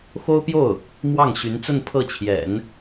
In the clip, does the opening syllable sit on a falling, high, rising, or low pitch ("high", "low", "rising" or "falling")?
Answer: high